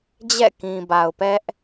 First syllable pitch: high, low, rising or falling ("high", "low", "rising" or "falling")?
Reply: falling